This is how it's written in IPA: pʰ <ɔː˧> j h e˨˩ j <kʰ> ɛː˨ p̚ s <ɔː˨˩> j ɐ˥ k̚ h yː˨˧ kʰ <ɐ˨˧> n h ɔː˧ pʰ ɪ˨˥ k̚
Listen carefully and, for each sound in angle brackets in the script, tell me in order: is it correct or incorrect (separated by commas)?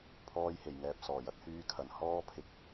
correct, incorrect, correct, incorrect